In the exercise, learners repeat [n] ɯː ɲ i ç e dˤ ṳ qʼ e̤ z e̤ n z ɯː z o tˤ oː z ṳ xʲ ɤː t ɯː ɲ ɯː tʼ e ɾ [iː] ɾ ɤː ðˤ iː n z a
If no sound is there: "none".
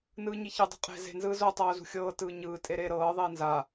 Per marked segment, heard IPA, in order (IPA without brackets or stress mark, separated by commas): n, eː